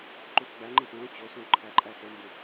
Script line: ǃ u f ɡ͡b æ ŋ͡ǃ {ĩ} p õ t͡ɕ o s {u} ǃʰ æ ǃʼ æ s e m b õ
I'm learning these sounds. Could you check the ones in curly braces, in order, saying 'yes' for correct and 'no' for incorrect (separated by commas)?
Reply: yes, no